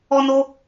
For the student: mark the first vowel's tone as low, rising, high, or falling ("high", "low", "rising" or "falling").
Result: high